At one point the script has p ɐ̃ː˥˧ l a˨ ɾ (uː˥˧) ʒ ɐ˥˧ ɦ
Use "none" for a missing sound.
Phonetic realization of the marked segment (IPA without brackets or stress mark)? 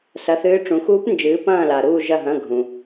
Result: uː˥˧